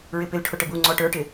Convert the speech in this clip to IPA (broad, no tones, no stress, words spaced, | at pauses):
ɹɪpɪlʈʰʊ ʈəbu ŋ͡ǀɔʈə˞ʈɪ